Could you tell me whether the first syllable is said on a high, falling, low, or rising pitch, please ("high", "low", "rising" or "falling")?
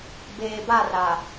low